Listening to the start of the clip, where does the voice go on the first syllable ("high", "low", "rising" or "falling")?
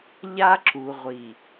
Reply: high